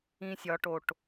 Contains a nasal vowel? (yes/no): yes